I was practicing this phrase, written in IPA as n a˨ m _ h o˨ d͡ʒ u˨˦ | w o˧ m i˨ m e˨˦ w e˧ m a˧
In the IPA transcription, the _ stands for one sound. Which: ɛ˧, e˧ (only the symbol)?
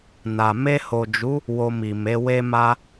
e˧